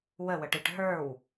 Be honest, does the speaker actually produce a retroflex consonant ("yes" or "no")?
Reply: yes